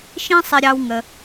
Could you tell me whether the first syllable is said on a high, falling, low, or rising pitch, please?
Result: high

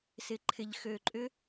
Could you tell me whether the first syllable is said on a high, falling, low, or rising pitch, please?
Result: low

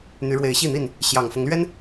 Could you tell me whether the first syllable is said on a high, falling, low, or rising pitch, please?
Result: rising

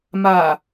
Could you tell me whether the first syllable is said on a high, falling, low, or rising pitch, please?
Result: low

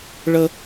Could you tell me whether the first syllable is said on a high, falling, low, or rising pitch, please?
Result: high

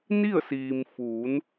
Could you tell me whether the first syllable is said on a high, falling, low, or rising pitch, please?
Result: falling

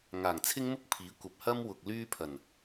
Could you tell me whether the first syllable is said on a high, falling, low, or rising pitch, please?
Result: low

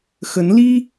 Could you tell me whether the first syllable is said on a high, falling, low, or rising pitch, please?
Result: rising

